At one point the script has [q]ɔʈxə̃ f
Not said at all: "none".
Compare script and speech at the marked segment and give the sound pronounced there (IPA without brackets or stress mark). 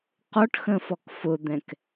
q